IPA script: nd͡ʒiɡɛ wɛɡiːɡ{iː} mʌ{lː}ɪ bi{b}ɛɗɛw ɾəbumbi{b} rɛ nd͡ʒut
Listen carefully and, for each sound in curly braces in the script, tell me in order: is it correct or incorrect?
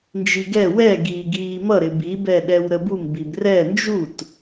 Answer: correct, incorrect: ɾ, correct, correct

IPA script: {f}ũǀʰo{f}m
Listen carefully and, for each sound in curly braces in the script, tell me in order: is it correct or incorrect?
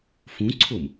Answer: correct, incorrect: none

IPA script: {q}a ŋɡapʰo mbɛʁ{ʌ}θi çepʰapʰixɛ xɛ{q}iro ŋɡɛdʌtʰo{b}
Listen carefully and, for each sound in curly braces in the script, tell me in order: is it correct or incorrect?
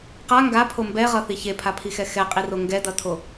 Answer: correct, correct, incorrect: qʼ, incorrect: none

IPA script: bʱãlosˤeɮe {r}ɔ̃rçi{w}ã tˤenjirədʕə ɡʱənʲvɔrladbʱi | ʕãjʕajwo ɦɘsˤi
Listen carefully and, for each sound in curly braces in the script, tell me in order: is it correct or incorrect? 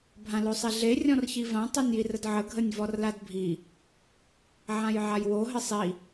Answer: incorrect: rʲ, incorrect: v

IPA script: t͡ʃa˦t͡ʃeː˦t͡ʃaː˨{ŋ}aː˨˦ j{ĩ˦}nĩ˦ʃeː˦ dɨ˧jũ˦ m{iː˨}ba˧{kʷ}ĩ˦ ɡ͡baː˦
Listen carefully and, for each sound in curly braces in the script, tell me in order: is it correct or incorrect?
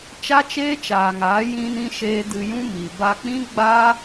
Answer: correct, correct, incorrect: i˨, incorrect: k͡p

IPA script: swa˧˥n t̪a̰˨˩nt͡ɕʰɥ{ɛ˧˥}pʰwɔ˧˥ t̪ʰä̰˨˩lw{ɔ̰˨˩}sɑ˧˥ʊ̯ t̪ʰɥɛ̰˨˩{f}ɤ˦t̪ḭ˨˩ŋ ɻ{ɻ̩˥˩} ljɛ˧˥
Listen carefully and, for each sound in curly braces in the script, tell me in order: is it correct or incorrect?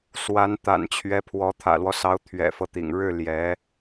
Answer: correct, incorrect: ɔ˦, correct, correct

